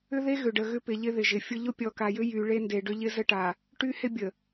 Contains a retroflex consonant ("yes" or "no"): yes